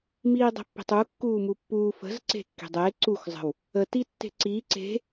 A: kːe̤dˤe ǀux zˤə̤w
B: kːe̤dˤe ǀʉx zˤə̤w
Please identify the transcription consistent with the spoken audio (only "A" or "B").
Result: A